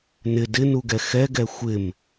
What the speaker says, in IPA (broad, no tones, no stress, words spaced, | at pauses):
nɪ dɪnuɡɛ xɛɡɛ xʷɪm